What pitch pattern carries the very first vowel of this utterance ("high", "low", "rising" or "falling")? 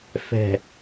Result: low